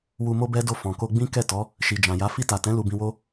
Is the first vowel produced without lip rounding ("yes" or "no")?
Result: no